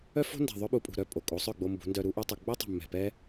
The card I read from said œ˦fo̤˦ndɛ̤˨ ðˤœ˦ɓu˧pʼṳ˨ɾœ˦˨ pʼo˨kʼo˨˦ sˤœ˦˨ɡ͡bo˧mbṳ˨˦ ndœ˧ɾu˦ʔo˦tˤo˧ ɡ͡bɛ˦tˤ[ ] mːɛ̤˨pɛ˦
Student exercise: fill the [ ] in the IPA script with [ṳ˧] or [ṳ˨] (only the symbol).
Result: ṳ˨